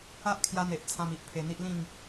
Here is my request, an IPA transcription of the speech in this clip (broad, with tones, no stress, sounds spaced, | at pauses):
a˦ ʔ kʰ j a˧ n̪ e˨ ʔ t͡sʰ ã˧ m i˨ ʔ pʰ e˧ n̪ i˦ ʔ l ĩ˥˧ ŋ